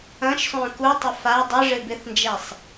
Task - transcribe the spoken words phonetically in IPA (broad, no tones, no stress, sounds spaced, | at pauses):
ɐ̃ ʃ sˤ œ̃ k u tˤ ə f a dˤ ɪ ʐ ɪ b ɪ θ n d͡ʒ ɛ sˤ